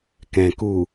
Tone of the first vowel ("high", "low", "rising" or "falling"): low